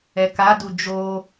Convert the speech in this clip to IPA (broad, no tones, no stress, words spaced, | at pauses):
ɛkadu d͡ʒo